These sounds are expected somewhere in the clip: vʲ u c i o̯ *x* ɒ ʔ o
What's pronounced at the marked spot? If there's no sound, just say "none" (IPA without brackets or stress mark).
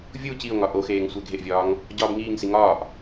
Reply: ŋ